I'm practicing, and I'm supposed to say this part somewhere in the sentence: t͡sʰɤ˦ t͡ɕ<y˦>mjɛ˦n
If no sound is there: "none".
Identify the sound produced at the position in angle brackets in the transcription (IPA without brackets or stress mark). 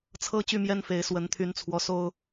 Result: y˦